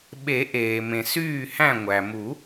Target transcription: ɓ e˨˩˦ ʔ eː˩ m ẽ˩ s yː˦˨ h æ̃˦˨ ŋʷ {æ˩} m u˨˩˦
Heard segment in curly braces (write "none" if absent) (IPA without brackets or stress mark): æ˩